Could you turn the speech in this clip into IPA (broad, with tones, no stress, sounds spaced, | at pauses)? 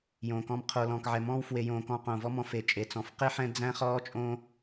j õː˩ k ɔ̃˨ m qʰ o˩ l ɔ̃ː˩ k ʕ ɛ˩ m ɔ̃ː˦ w f w e˨ j õː˨ k ɔ̃ː˨ q õː˩ v ɔ˦ m ɔ̃˨ f e˩ t͡ʃʼ e˩ t͡s ɔ̃˩ f q e˥ ħ ɛ̃˦ d͡z æ̃˥ χ ɔː˥ t͡ʃʼ õ˦